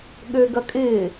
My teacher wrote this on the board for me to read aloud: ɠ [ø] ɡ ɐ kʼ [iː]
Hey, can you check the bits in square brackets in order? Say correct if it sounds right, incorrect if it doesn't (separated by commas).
correct, incorrect